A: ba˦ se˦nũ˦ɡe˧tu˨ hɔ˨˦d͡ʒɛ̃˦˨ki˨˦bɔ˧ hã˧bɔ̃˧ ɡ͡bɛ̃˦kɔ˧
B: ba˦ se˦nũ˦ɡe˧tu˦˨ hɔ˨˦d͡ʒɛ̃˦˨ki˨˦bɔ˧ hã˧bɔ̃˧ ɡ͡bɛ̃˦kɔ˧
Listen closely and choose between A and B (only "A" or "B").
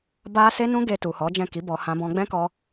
A